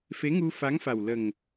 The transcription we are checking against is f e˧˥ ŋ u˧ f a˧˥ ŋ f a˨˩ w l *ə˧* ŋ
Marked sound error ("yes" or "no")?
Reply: yes